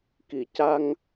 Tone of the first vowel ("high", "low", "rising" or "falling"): low